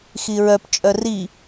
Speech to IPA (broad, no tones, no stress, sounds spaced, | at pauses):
x i ɹ œ p t͡ʃʼ œ r i